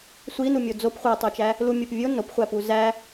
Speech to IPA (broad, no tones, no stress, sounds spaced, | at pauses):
sʷ i n u mʲ o d͡z o p χʷ æ tˤ o t͡ʃ æ | l u mʲ o p vʲ o n o p χʷ æ p u z æ